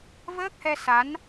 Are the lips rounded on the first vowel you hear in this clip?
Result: no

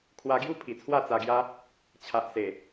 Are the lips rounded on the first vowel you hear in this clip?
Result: no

